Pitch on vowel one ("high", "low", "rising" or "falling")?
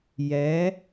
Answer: rising